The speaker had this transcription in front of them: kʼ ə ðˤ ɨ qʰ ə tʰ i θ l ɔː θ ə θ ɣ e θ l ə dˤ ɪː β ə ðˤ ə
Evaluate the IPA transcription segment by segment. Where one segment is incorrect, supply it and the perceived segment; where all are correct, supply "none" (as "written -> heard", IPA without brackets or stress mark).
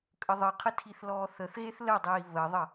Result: ɪː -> iː